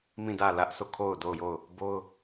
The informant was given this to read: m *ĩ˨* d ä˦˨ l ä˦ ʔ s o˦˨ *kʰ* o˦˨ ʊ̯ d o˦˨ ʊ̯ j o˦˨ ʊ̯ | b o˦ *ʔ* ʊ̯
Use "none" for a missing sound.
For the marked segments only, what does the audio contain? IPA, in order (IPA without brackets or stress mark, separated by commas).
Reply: ĩ˦˨, kʰ, none